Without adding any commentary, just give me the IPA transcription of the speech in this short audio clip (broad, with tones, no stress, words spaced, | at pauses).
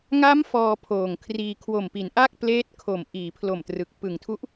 ŋa˦˥m fɔː˧pʰoː˨˩ŋkʰriː˧ kʰwo˨˩mpi˩˦nʔa˥˩k̚ pleː˦˥t̚kʰo˨˩m ʔiː˩˦pʰlo˨˩mtrɯ˨˩k̚ pɯ˨˩ŋtʰu˦˥ʔ